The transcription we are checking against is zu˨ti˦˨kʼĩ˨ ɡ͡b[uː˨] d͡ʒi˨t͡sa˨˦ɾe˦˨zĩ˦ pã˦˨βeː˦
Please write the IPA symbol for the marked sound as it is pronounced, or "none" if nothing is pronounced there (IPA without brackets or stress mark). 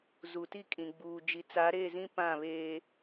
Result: uː˨